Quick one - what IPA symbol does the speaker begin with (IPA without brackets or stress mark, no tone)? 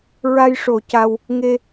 ɹ